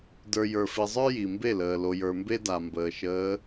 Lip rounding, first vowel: unrounded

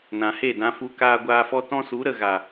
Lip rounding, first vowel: unrounded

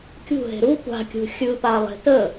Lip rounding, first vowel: rounded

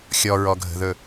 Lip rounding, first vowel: rounded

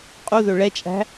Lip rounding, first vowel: rounded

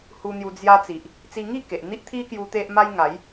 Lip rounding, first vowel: rounded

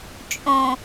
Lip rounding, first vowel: rounded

